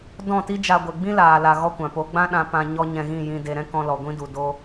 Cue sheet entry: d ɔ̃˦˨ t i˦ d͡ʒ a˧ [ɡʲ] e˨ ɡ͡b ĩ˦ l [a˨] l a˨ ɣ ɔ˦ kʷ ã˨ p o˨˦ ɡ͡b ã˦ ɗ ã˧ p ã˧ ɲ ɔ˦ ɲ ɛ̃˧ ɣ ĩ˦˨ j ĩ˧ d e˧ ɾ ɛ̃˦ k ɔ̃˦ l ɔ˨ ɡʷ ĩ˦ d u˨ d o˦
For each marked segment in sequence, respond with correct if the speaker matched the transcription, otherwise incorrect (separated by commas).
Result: incorrect, incorrect